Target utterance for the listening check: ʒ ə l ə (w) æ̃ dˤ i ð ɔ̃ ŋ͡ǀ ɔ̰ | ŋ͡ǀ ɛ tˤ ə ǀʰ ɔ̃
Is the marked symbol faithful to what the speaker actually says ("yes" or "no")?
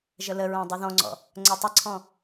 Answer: no